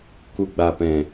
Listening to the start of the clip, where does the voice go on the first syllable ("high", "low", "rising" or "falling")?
low